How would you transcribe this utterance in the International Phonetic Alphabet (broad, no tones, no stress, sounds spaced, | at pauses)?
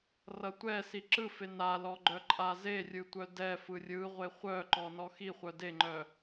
r ʌ tʷ ɛ s i ǁ ɯ f e n a l ɔ ɡ͡ǃ œ ǃʼ a z e rʲ ɯ tʷ œ d ɛ f ɯ rʲ ɯ ʁʷ e χʷ œ ǃ ɔ n ɔ x i χʷ œ d e ŋ͡ǃ œ